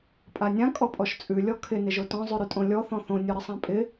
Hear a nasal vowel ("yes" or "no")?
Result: yes